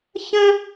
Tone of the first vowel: high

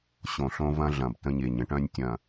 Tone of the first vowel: low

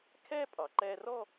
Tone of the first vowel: high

